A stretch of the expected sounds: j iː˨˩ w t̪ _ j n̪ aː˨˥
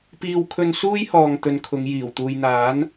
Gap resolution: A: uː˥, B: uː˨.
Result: B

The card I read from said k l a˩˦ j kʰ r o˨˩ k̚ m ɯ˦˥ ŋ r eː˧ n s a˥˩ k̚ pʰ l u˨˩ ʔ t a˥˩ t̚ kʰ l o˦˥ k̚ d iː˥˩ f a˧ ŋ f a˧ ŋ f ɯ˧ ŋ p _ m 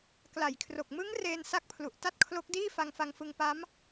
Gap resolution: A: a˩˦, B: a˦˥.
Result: B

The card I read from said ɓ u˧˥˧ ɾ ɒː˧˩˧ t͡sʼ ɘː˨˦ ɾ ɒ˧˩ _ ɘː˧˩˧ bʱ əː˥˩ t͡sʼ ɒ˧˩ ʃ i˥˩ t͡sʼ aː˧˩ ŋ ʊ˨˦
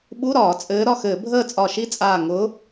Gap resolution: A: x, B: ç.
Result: A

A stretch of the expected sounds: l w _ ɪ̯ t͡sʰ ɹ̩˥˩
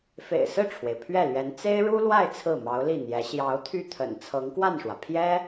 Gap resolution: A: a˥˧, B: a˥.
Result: A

